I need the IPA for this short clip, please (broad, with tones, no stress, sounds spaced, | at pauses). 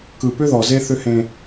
k ɯ˨ p ʏ˦ ð ɔ˨ z e˦ θ ʏ˦ h ẽ˦